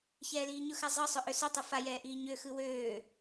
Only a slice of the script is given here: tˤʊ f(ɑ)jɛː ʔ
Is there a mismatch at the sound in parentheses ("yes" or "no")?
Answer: yes